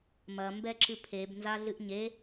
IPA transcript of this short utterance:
m ɐ m b ɛ ǁ ɨ pʰ e b n z a ɮ ɨ ʔ ɲ e

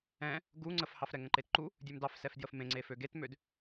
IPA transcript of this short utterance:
ɛ̃ | ɡ u ŋ͡ǀ ə f h ɑ f ɾ ɛ ŋ ə̃ ǃ e t ǃ u | dʲ ø m d ɑ f s ɛ f d j ə f m ẽ ŋ͡ǀ e f ø ɡ e t m ø d

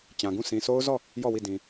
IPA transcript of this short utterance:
t͡ɕ ã˨ ɡ ũ˦˨ s ĩ˨ sʰ o˦ ʊ̯ z ɔ˦˨ | j ɔ˦˨ w i˦˨ d ĩ˨

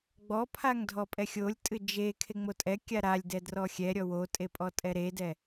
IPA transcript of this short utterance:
ɡ͡b ɔ pʰ a ŋ dʱ ɔ pʼ ɛ xʲ o lʲ tʼ ɨ d͡ʒ e kʰ e ŋ͡m o tʼ ɛ kʲ a ɾ a lʲ d ɛ d r ɔ xʲ ɛ ɾʲ ɔ w o tʼ e pʼ ɔ tʼ ɛ ɾ e d ɛ

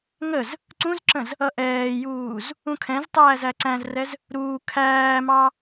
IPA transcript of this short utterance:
ŋ ə z | ǀ ũ z ǁ ə̃ z | ʌ ʔ ɛː j uː z | ũ kʰ ɛ̃ z tˤ æː z æ ǀ æ̃ z r ɛ z | ɾ uː kʰ æː m ɑ

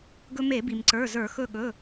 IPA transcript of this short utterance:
ɡ ɵ˧ m e˧˩˧ b i˩ m ǀ ə˞˩˧˩ z ə˞˧˩˧ x ɵ˧˩ ɠ ɵ˩˧˩

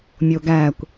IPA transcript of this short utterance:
mʲ o ɡ æ kʷ

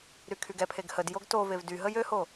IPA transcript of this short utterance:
ɾ y kʰ y ɡ ɛ pʰ e ɡ h ə d j o ɡ t o v e v d y ɦ ə j ø h o

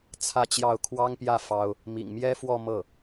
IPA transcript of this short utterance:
t͡sʰ ä˥˧ t͡ɕ j ɑ˥˩ ʊ̯ kʰ w ɑ˥ ŋ p j ä˥˩ f ɑ˥ ʊ̯ | m ḭ˨˩ ŋ m j ɛ˥ f w ɔ˥˧ m ɤ˥˩

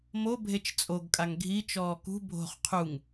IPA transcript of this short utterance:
m o bʱ e t͡ʃ t͡sʼ o ɡ kʼ a ŋ ɡʱ i t͡ʃ ɔː k ṳ bʱ o̤ χ qʰ u ŋ

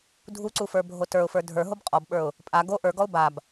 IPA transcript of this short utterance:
dʱ u ǀ u f ə˞ bʱ o t ə˞ ʊ̯ f ə˞ dʱ ə˞ ɦ o b qʼ ɔ b ɓ ə˞ ʊ̯ | pʼ a ɡ o ʔ ə˞ ɡ ɔ ʊ̯ b a b

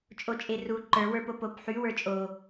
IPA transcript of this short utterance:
t͡ʃʼ o t͡ʃʼ e r u ǃ ə˞ w ə˞ p o p o p ħ y w ə˞ t͡ʃʼ o

